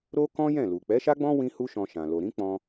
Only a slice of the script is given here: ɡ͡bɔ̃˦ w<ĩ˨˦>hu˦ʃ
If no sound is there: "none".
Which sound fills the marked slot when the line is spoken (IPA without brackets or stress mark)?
ĩ˦